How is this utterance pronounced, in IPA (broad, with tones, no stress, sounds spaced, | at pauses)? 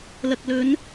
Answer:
l ɐ˨ k̚ l ɵ˨˧ n